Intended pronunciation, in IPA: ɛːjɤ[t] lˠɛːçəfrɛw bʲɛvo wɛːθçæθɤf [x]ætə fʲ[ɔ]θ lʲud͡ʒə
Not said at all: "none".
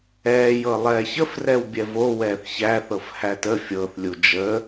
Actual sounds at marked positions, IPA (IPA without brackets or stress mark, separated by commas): none, h, ɤ